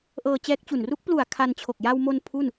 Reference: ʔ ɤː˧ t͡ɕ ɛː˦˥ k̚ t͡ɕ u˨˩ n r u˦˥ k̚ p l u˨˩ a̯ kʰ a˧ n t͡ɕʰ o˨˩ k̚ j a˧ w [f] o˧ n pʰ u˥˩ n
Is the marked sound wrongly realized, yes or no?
yes